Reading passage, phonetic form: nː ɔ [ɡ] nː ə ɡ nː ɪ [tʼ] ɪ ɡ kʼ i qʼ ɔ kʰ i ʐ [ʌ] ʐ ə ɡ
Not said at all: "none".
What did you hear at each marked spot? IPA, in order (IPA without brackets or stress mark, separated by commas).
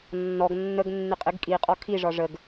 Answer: ɡ, qʼ, ɒ